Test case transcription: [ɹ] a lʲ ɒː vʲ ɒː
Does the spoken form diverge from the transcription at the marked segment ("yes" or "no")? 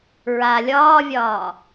no